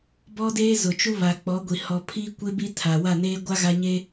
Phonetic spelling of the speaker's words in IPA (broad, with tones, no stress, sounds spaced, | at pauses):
b ɔ˦ d eː˦ z ʊ˨ t͡ʃ u˦ β a˨ k͡p ɔ˨˦ ɡʷ i˨ h ɔ˨ pʰ iː˦ kʷ e˦ b i˦ tʰ a˨ w a˦˨ n eː˦ ɡʷ a˦ ɣ a˦ ɲ e˦